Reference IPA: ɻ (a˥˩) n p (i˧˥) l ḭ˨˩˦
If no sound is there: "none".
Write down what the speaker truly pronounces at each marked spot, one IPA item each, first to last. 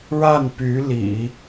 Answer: a˥˩, y˧˥

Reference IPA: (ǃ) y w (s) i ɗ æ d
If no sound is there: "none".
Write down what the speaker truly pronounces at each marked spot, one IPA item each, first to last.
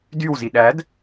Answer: d, z

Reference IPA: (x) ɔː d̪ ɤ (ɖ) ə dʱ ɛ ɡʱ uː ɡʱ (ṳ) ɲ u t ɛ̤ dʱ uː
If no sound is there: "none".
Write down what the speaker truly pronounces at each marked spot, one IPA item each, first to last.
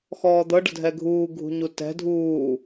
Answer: x, ɖ, ṳ

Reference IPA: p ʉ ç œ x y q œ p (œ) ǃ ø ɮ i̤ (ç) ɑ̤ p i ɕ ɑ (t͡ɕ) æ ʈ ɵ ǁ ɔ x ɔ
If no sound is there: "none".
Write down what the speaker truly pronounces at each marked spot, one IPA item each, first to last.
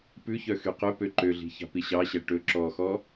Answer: ø, ç, ɕ

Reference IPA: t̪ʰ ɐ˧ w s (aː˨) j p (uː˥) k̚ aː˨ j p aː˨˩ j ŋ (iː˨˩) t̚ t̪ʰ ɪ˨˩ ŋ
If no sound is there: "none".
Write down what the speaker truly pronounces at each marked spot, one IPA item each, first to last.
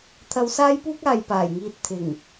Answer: aː˥, uː˥, iː˧

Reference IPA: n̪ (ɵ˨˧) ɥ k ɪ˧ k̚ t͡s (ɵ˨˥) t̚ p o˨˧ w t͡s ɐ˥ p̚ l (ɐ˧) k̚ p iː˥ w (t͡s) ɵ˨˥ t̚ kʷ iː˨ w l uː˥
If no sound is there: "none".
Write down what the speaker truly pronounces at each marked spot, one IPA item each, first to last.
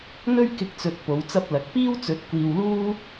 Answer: ɵ˥, ɵ˨, ɐ˨˥, t͡s

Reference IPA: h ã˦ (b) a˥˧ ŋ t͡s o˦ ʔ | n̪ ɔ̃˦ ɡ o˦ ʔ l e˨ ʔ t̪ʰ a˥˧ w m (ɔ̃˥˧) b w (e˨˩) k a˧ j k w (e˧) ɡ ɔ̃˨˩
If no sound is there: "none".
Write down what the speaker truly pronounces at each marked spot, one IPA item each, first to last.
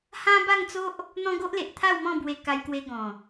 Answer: b, ɔ̃˥˧, e˧, e˧

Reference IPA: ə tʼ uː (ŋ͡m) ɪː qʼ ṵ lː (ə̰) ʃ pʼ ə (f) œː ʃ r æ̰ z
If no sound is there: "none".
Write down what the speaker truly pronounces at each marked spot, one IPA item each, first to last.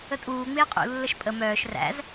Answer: ŋ͡m, ə, m

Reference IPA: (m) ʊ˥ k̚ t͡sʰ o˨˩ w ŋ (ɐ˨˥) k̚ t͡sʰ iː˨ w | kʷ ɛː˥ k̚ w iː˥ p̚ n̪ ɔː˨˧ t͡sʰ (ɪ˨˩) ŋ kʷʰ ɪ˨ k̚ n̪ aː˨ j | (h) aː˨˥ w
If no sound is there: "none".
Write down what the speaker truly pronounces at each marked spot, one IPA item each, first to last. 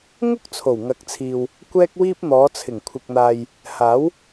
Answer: ŋ, ɐ˨˥, ɪ˨˩, h

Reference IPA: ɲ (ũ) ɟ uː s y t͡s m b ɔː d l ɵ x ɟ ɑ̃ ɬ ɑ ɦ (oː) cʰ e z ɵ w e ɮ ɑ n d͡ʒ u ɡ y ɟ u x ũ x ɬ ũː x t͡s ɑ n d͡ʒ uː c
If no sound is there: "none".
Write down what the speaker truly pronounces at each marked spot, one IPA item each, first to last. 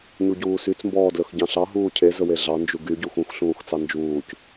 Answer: u, uː

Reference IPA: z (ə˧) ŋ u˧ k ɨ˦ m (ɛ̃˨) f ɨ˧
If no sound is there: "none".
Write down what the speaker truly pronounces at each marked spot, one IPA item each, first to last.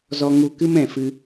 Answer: ɔ˧, ɛ̃˨

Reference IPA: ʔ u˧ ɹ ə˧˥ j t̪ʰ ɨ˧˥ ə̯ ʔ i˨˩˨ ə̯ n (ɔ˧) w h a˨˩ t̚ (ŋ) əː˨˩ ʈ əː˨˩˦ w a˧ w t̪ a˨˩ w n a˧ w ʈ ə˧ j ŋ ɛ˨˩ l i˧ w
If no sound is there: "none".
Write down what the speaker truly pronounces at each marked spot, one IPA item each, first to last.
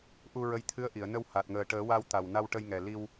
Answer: ə˧, ŋ

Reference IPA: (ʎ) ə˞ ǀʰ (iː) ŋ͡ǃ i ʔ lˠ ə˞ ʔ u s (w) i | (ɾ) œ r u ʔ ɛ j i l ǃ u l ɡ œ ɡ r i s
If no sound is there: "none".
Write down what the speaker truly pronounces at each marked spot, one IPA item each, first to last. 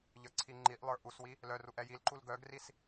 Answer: ʎ, i, w, l

